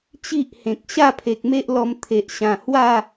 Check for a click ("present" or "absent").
absent